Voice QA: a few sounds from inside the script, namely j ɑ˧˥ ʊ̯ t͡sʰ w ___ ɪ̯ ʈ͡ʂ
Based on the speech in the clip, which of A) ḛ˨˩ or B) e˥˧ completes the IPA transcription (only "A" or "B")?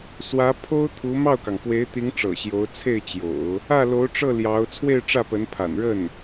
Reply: B